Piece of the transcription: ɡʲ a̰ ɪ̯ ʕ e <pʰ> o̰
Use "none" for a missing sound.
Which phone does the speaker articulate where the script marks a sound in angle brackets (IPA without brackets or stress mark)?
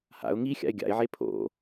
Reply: pʰ